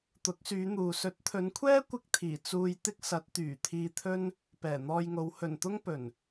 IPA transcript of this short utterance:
t̪ ʊ˨˥ k̚ s yː˨˧ n̪ uː˨ s ɵ˨˥ t̚ t̪ʰ ɵ˨˧ n kʷʰ ɛː˥ kʷ ɪ˥ k̚ t̪ʰ iː˨˩ t͡s uː˧ j t̪ ɪ˥ k̚ s ɐ˨˥ t̚ t̪ yː˨˩ t̪ʰ iː˧ t̪ʰ ɵ˥ n | p ɛː˨˩ n̪ ɔː˧ j ŋ o˨˧ w h ɵ˨˩ n t̪ ʊ˥ ŋ p ɵ˨˩ n

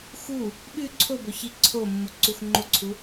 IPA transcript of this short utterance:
x u | ɓ ʉ ǀʰ o b ɵ ç i ǀʰ o mː u ǀ u x ŋ͡ǃ o ǀʰ u

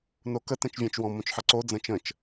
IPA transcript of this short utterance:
n o k ə t ɛ̃ t͡ʃ vʲ æ̃ t͡ʃ w ɔ̃ m õ t͡ʃ ħ ʌ ǀ o d͡z ə̃ t͡ʃ ə̃ t͡ʃ

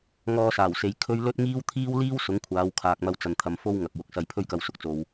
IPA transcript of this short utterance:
ŋ ɔː˧ s aː˨˩ w s e˨ j kʰ ɵ˥ ɥ l ɵ˥ t̚ ŋ iː˥ w t̪ʰ iː˥ w l iː˥ w s ʊ˨˥ ŋ kʷʰ aː˨˧ w kʰ aː˨ k̚ m ɐ˧ w t͡s ɐ˨ n t̪ʰ ɐ˨ m f o˥ w ŋ ɐ˨ k̚ w ʊ˨ k̚ s ɐ˧ j pʰ ɵ˥ ɥ k ɐ˧ w s ʊ˧ k̚ t͡s o˨ w

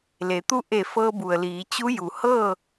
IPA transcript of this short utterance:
l e˩˧ t̪ u˥˨ ʔ e˧˩ f ɤː˧ b u˩ ə̯ l iː˩˧ t͡ɕ u˧˥ j u˩ h ɤː˥˨

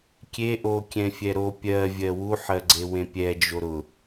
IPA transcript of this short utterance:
kʲ e ʔ o kʲ ɛ̃ fʲ ɛ ɾ o pʲ ɜ vʲ ɜ w u ħ ɜ ɡ͡ǀ e w ẽ pʲ ɛ d͡ʒ o ɾ ʊ

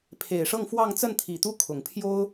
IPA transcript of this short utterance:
pʰ e˨˩ ɪ̯ ʂ ɤ˥˧ ŋ f w ɑ˥˧ ŋ t͡s ə˥˩ n t̪ʰ i˨˩ t̪ u˥˩ kʰ ʊ˨˩ ŋ pʰ j o˥ ʊ̯

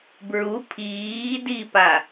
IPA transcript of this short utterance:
b ɹ u pʰ iː d i p a

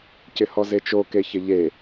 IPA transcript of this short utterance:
c ɪ h ɔ z e t͡ʃ o k e ç ɪ ʎ e

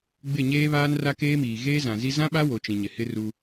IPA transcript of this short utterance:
ɡ͡b ɪ˦˨ ɲ eː˦ β aː˦ n r a˦ k eː˦ m iː˨ ɣ eː˦ z ã˨ z i˦ z ã˦ ɓ a˦ w o˨ t͡ʃ ĩ˨ ɲ ɪ˨ h ɪ˦ r u˦

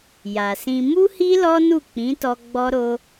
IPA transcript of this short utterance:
j a˨ s ĩ˧ m u˦ h i˦ l ɔ˦ n u˦˨ k͡p ĩ˨˦ t ɔ˧ ɡ͡b ɔ˦ ɾ o˦

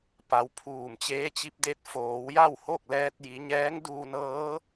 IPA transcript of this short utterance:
p a˩˧ w pʰ uː˧˩ m t͡ɕ eː˧˥ t͡ɕ i˧˥ p̚ d e˧˥ t̚ f oː˩˧ w j a˥˨ w h o˥˨ k̚ l ɛː˧ t̚ j i˩˧ ɲ ɛː˧˥ ŋ d uː˧ n ɤː˧˥

